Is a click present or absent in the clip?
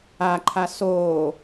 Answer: present